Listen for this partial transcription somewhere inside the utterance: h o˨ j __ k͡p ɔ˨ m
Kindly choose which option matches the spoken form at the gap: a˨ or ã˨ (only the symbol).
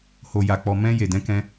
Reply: a˨